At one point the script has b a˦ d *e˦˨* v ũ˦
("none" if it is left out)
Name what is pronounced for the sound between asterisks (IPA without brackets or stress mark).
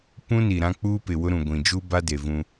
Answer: e˨